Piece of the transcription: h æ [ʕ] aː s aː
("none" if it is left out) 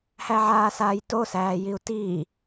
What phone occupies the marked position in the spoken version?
ʕ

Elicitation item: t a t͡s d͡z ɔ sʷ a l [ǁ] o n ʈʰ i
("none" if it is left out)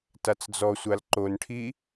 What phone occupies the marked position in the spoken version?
ǃ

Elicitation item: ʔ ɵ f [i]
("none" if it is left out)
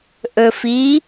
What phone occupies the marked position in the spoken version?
i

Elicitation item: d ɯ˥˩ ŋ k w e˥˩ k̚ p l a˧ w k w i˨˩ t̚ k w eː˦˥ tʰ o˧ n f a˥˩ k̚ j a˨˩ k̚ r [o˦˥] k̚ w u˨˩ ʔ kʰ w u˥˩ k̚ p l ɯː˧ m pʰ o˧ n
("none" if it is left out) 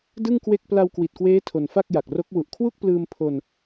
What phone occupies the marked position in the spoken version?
o˦˥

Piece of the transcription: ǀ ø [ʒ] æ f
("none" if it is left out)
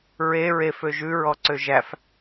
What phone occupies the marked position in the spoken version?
ʒ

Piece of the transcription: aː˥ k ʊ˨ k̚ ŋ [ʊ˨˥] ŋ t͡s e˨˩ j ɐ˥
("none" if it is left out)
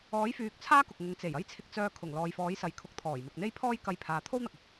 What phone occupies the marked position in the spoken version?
ʊ˨˧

